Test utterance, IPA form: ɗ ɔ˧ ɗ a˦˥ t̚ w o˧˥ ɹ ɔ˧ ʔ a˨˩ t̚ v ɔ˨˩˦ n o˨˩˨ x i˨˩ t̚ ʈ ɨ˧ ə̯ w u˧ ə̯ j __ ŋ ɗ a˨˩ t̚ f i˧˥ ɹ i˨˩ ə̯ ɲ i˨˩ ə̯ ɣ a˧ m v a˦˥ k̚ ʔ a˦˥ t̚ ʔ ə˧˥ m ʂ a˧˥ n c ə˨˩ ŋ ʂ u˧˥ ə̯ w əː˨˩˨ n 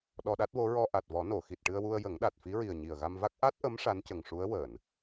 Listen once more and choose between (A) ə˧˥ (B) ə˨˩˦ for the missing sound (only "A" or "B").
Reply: B